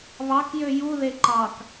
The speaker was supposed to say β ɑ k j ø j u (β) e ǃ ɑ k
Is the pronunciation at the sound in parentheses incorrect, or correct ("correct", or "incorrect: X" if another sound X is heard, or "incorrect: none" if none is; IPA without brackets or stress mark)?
incorrect: ð